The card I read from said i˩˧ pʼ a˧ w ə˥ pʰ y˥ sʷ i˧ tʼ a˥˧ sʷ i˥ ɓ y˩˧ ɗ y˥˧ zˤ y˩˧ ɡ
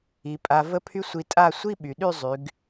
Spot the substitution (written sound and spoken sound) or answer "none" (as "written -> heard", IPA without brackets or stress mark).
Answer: w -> v